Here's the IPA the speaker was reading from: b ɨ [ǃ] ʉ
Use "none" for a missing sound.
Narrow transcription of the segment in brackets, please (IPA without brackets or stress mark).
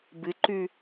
ǃ